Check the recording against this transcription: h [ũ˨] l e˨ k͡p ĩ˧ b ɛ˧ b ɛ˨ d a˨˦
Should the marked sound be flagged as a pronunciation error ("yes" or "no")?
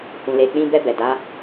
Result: no